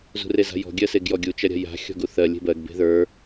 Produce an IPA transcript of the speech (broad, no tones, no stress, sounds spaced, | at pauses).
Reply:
z ṳ r e z a̤ j ɔ̤ ɡʲ ɜ s e ɡ j ɔ ɡʲ u t͡ʃ ɐ ɾʲ a̤ j a̤ xʲ ɔ̤ ɡ u θ ɜ lʲ e̤ b ɜ ɡ b e̤ ð ə˞